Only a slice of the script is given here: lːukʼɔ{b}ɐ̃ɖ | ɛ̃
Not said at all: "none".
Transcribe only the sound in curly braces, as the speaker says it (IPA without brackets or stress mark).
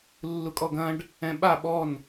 ɡ